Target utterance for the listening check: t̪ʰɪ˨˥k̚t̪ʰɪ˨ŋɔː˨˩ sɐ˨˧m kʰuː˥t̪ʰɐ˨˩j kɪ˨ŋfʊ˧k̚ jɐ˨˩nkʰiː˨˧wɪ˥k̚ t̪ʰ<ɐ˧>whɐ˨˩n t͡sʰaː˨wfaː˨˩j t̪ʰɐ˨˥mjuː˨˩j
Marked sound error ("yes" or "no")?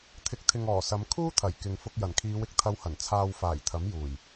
no